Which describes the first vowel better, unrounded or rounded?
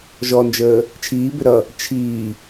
rounded